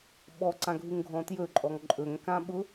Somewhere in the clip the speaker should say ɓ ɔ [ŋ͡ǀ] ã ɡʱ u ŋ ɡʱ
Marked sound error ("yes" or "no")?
yes